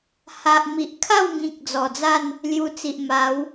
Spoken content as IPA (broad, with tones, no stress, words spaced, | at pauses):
ha˨ʔ mi˨ʔ kʰa˥˧wŋĩ˨k̚ d͡zɔ˨˩d͡za˥˧n | lju˧t͡si˨ʔ ma˨˦w